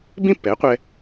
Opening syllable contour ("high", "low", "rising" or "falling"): falling